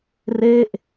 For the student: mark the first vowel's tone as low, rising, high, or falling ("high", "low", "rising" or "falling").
falling